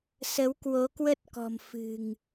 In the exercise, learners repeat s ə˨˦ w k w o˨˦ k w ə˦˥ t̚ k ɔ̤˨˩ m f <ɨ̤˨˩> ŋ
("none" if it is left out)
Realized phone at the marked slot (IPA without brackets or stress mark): ɨ̤˨˩